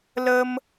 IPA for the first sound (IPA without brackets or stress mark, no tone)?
l